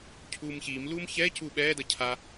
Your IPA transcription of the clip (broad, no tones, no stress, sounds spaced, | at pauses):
cʰ uː m ç iː m l uː m ç ɛ c uː ɓ ɛː d ʌ cʰ a